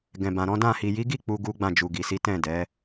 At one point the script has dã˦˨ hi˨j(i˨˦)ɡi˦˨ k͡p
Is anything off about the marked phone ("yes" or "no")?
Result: no